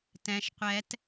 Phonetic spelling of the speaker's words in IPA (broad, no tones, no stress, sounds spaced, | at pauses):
t ɛ̃ ʃ qʷ ɛ t